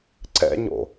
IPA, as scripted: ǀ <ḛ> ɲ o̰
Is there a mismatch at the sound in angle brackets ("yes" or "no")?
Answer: yes